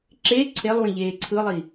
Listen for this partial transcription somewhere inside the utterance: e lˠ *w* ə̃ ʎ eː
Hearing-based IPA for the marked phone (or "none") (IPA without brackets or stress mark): w